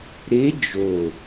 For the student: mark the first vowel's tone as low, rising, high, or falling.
rising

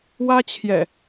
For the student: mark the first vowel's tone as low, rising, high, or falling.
high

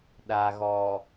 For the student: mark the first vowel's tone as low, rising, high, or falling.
low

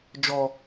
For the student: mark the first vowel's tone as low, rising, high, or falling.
low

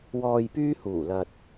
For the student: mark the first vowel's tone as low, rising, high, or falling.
low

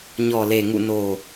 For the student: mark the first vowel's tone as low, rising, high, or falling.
low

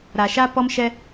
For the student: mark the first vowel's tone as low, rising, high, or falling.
low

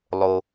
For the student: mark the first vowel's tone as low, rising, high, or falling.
low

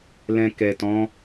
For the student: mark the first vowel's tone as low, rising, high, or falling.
low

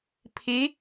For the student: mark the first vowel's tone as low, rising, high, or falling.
rising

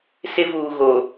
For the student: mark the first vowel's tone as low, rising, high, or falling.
high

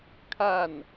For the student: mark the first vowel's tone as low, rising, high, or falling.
falling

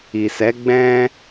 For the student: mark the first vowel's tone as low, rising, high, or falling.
low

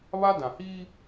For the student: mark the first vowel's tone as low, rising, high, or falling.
high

